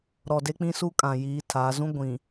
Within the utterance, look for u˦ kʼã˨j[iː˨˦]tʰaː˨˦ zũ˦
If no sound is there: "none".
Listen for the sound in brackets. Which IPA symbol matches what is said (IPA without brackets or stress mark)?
iː˨˦